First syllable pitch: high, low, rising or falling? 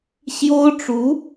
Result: high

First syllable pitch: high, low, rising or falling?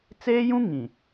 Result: high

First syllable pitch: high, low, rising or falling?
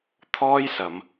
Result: high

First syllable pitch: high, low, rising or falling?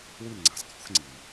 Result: falling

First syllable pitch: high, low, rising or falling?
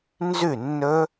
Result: falling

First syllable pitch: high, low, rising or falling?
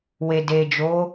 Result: low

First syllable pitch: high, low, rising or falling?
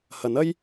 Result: rising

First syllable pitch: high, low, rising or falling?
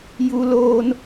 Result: high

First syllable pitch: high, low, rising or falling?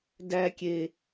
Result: low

